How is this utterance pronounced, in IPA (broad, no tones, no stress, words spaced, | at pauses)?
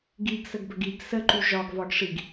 ɡiɡsəɡbəɡ iɡ səǃy ʒɒɡvɒɡʂiɡ